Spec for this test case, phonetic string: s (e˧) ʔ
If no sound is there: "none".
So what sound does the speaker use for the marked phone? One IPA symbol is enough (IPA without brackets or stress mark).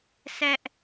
ɛ˧